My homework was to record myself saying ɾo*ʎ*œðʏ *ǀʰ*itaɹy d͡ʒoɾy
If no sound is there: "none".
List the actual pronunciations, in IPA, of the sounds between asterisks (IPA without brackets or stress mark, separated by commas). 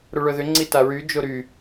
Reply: ɭ, ŋ͡ǀ